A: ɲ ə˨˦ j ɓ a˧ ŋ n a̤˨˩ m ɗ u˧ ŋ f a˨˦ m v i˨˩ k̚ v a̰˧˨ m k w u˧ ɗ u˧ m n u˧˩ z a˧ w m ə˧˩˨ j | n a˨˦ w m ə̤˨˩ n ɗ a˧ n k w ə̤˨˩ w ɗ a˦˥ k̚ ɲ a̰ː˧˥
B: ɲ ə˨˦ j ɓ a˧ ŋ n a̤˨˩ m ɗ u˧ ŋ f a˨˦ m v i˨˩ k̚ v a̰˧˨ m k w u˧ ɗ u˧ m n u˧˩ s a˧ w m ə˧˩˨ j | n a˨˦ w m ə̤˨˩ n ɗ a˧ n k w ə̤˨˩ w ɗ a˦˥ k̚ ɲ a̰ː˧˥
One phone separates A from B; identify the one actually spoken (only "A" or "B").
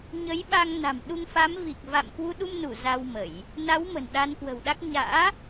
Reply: A